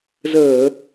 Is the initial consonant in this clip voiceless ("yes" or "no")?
no